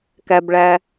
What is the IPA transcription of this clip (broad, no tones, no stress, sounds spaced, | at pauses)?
k æ b ɭ æ